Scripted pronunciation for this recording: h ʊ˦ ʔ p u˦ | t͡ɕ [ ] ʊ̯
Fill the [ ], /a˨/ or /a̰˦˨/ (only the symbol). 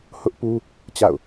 a̰˦˨